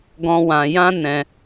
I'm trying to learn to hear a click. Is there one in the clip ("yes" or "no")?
no